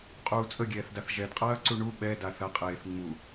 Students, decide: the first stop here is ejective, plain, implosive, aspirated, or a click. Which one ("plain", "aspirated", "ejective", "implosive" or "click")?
ejective